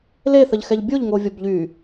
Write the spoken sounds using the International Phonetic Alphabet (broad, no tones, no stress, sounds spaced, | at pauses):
l e θ ə ʎ x ɛ ʎ bʲ o ʎ ŋ o vʲ ɔ b ʎ y